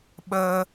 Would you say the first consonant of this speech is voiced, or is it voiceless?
voiced